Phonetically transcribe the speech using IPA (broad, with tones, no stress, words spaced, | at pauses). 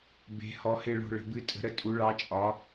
be̤˩˧ hɔ˩˧hɪ˦˨ɭo̤˦˨ ɭə̤˩˧bɨ˨˥ tʼə̤˨˥ɾə˨˥ tʼu˨˥ɭɑ˨˥t͡ʃʼɒ˨˥